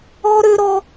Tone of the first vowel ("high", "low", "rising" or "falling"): high